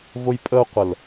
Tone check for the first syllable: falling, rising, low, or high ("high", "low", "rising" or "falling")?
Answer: high